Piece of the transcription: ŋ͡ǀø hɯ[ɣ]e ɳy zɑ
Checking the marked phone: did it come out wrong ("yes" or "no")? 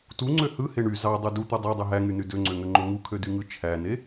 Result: yes